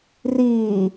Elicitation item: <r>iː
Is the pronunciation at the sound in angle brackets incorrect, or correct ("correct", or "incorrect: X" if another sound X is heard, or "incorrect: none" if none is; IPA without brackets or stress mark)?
correct